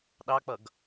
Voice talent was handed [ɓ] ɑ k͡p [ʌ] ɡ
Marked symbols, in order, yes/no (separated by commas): no, yes